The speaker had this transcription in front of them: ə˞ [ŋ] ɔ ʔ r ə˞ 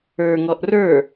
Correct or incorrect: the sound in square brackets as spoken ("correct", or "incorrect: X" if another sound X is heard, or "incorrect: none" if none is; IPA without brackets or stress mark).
correct